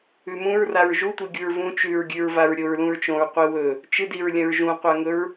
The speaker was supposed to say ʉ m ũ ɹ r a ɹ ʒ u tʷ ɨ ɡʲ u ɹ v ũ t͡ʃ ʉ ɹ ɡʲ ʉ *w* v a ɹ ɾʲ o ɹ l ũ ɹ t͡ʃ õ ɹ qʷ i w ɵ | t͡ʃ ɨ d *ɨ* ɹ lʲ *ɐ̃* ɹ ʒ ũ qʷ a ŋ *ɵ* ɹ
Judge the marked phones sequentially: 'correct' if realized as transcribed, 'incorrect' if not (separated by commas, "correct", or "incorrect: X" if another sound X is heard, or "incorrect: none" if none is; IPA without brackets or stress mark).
incorrect: ɹ, incorrect: i, correct, correct